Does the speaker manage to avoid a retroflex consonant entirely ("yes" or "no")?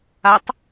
yes